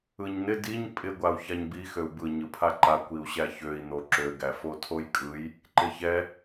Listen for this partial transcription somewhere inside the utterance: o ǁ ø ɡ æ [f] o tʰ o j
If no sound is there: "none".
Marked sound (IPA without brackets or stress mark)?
f